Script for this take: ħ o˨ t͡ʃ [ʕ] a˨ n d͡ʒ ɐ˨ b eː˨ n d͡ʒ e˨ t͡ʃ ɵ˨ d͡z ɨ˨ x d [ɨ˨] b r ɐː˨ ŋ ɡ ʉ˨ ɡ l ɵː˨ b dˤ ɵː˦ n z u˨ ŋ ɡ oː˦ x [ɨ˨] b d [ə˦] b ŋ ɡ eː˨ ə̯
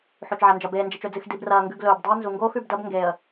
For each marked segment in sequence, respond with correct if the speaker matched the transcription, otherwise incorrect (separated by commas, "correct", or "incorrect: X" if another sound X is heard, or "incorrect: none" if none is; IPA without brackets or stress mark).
correct, incorrect: i˨, incorrect: ʉ˨, incorrect: ɐ˦